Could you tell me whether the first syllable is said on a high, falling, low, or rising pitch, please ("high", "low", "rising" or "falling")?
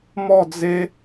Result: falling